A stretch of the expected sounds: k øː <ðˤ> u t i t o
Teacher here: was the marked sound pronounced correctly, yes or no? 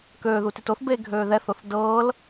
no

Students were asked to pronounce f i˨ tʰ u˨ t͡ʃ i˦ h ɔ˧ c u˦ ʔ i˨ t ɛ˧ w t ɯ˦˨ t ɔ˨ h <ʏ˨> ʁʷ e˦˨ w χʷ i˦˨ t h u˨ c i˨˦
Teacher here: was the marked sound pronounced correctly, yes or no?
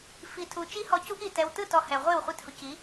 no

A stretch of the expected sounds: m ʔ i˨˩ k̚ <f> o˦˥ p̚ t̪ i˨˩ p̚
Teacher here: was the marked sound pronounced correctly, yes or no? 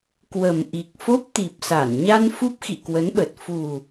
yes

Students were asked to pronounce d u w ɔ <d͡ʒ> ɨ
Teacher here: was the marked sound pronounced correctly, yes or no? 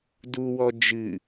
yes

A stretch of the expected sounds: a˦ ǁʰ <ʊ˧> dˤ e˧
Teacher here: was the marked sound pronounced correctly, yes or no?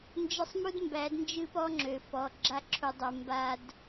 no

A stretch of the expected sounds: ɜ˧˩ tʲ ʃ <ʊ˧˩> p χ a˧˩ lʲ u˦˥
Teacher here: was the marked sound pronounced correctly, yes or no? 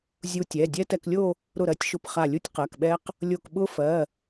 yes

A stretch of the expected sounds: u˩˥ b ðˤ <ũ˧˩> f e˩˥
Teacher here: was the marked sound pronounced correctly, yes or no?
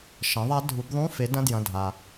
no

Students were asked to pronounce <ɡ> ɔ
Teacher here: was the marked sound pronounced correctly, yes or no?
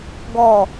yes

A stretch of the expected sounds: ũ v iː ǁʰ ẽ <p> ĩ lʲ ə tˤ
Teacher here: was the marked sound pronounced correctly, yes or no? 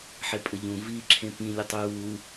yes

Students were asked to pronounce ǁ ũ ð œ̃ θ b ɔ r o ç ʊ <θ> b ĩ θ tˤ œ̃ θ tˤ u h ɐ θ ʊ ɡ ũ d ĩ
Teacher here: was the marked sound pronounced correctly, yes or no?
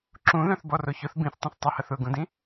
yes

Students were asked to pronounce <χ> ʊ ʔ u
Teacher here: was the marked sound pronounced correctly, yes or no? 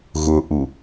no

